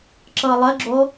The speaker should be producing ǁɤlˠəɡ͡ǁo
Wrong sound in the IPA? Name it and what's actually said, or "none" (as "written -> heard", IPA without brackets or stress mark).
none